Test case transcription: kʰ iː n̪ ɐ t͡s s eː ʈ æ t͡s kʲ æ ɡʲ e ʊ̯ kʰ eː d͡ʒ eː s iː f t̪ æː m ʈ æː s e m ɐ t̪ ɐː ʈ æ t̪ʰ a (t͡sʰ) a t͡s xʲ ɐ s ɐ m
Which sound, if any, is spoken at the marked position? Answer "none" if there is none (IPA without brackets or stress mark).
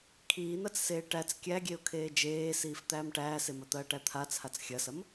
t͡sʰ